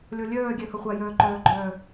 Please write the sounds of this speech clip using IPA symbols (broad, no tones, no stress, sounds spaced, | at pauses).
lʲ ɔ lʲ œː ɡʲ ɛ h ʌ χʷ a j œː ǃ œː ɡ͡ǃ œː